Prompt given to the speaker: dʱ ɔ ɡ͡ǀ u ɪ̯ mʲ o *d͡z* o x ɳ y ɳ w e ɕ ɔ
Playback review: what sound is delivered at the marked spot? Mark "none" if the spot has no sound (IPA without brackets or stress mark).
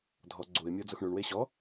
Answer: d͡z